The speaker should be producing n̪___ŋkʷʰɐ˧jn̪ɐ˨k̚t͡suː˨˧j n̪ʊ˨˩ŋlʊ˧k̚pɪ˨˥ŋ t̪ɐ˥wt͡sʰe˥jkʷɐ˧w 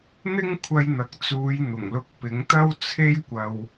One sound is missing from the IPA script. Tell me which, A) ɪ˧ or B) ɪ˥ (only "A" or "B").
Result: B